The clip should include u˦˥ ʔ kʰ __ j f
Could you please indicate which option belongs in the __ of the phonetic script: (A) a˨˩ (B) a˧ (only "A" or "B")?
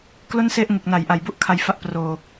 B